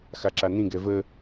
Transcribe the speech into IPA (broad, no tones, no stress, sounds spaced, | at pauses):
x a ǁ a n ĩ ɡ ɛ v ə